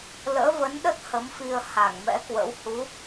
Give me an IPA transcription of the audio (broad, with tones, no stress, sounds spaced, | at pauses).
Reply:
l ə̰ː˧˥ v ə˨˦ n ɗ ə˦˥ t̚ h ə˨˦ m f i˧ ə̯ h a˧˩ ŋ m ɛ̰˧˥ k w ə̰˧˥ w h u˨˦